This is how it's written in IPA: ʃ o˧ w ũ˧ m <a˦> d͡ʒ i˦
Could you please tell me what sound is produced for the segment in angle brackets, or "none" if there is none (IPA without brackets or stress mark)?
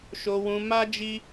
a˦